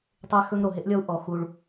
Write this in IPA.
tˤ e˦ x ɵ˦ ŋ ɾ o˨ ɦ e˦ ʔ lʲ ɔ˦ u̯ ʔ ɔ˨ x u˦ ɭ

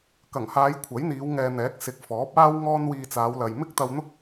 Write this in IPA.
k ɐ˨˩ ŋ h aː˨˧ j kʷʰ ɐ˨˥ j n̪ iː˨˧ w ŋ ɛː˨ n̪ ɛː˨˥ k̚ s ɪ˨˥ k̚ f ɔː˨˥ p̚ aː˥ w ŋ ɔː˥ n w iː˧ t͡s aː˨˧ w l ɐ˨ j m ɪ˥ k̚ t̪ ɐ˧ w n̪ ʊ˥ k̚

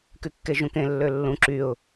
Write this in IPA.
k y kː e ʒ ũ k ẽ lː ø lː ũ ǁ y ʊ̯

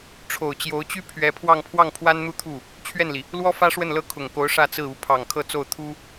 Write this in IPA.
ʈ͡ʂʰ o˨˩ ʊ̯ t͡ɕ j o˧˥ ʊ̯ t͡ɕ y˥ pʰ ɥ ɛ˧˥ pʰ w ɑ˥˧ ŋ pʰ w ɑ˥˩ ŋ pʰ w a˥ n n̪ u˥˧ t̪ʰ u˥˩ | t͡ɕʰ ɥ ɛ˥˩ n l i˩ | l w ɔ˥ f ä˥ ʂ w ə˥˩ n l ɤ˥ kʰ ʊ˨˩ ŋ k o˧˥ ʊ̯ ʂ ä˥˧ t͡s ɹ̩˥˩ u˧˥ pʰ ɑ˨˩ ŋ kʰ ɤ˥˧ t͡s o˥˩ ʊ̯ t̪ʰ u˥

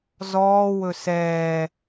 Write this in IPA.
z ɔː w ɵ s ɛː

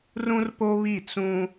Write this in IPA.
r ũ˦ r p o˦ β i˦˨ t͡s ũ˦

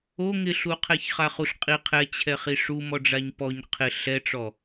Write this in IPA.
o ŋ ɪ ɬ u qʰ ɛ ç χ a χ u ɬ qʼ i qʰ ɛ t͡ɕʰ ɛ χ i ʂ u m ɔ ɖ͡ʐ a ɲ p ɔ ɲ qʰ ɪ ɬ ɛ ʈ͡ʂ ɔ

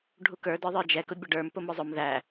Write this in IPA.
ɖʱ u k ə˞ d ə˞ ðˤ ə˞ d͡ʒ ɛ k ʊ bʲ ʌ ɖ ə˞ m p ʊ m ʊ zˤ ʊ m ð æ

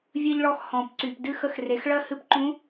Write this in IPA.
vʲ ɨ˧ ʎ ɭ ɔ˧ x h ɔ̃˩ p ǀ y˩ p d ɨ˧ x ə˧ x r e˩˧ x ɭ ɜ˥ h ɨ˥ p ǃ ũ˧˥

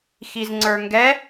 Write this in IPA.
x i z ŋ͡ǀ ə˞ ŋ ɡ ɛ

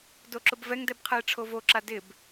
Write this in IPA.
d o ǁ ʊ b v ɛ ŋ d ɛ b qʰ ɛ e̯ ʈ͡ʂʰ o v o ǁ a d ɪ b

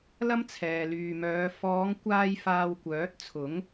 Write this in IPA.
l ɐ˥ m t͡sʰ ɛː˨ l yː˨ m œː˨˧ f ɔː˨˧ ŋ kʷ aː˧ j f aː˧ w kʷ œː˨˥ t̚ t͡sʰ ʊ˨˥ ŋ

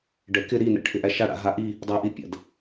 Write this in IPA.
ɖ ɛ k ɪ ɾ i n ɛ̰ ʈʰ ɪ ʔ æ ʃ a ɽ a̰ ɦ a ʔ i | dˤ æ ʔ i pʲ a̰ d

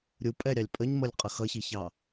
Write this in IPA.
ɾʲ u pʼ ɛ ɾʲ ɑ lʲ pʼ ə ɲ m ʌ lʲ qʼ ʌ x ʌ ç i ç ɑ

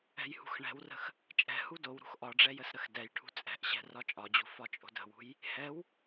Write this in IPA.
ɛ̤ j h ṳ x ɳ ɛ̤ w r ə̤ x | t͡ʃʼ ɛ̤ h u d o w ɾ ṳ x ʔ ɒ ɖ͡ʐ ɛ j ə s ɾ ə x d ɛ j ʈʰ ṳ t͡sʼ ɛ̤ ʔ ɕ ɛ̤ r ɒ t͡ʃʼ ɒ d͡ʑ ṳ f ɒ t͡ʃʼ o̤ d ə̤ w ṳ j | h ɛ w

